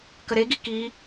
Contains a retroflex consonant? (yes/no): no